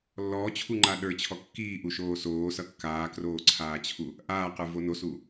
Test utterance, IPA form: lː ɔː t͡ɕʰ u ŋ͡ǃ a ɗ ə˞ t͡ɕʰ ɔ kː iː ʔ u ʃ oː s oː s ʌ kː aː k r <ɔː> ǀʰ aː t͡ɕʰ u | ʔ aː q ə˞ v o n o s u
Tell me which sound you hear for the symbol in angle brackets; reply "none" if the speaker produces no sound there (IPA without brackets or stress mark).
oː